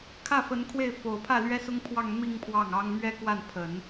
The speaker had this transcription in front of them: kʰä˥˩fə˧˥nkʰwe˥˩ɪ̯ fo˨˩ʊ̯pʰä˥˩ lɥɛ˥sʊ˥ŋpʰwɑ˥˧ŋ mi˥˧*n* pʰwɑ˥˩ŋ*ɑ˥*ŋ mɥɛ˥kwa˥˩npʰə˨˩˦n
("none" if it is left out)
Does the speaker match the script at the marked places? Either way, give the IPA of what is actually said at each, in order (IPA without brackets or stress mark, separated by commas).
ŋ, ɑ˥